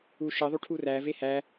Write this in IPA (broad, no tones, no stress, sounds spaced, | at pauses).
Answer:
u ʃ e ðˤ u ʈʰ u r æ v e h æ